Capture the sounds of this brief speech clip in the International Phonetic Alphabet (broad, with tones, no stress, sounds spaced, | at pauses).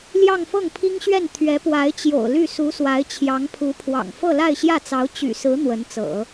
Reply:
l j ɑ˥˧ ŋ f ɤ˥˩ ŋ pʰ i˥ ŋ ɕ ɥ ɛ˥˩ n t̪ʰ ɥ ɛ˧˥ p w a˧˥ ɪ̯ t͡ɕ j o̰˨˩ ʊ̯ l y˥˩ s u˧˥ s w a˧˥ ɪ̯ t͡ɕʰ j ɑ˧˥ ŋ pʰ u˧˥ pʰ w ɑ̰˨˩ ŋ f ɤ˥˧ l a˥˧ ɪ̯ ɕ j ä˥˩ t͡s ɑ˧˥ ʊ̯ t͡ɕ y̰˨˩ s ɹ̩˧˥ n̪ w ə˧˥ n t͡s ɤ̰˨˩˦